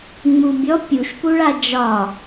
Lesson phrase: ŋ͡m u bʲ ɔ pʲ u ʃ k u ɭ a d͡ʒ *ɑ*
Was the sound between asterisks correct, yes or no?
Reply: no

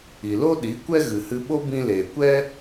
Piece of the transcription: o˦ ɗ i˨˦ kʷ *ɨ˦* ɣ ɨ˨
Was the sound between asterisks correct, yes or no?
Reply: no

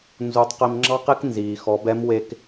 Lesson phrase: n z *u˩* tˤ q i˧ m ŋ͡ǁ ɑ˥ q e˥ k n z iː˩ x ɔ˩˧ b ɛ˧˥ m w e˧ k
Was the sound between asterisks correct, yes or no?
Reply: no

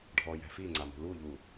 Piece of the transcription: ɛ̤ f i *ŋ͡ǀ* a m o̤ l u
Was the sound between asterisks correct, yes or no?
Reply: yes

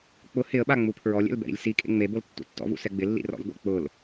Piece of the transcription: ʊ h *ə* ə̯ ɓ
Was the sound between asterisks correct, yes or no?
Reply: no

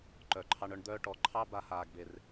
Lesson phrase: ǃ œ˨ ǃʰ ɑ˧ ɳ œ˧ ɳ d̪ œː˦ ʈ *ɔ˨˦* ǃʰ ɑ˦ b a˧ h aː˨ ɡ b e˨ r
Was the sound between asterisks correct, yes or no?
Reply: yes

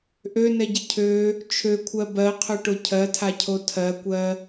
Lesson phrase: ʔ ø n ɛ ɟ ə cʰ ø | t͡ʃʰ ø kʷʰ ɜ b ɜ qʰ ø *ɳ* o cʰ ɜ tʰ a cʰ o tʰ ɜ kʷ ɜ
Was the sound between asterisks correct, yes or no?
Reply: no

